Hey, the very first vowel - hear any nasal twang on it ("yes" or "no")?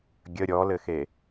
no